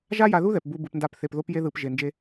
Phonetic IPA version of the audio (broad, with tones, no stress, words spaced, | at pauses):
ʒa˦ja˧ðu˦ðɛ˨p bu˧ bɯ˧pnda˦˨pθe˧p ðo˦pje˦ ðɯ˧p ʒe˧nd͡ʒe˦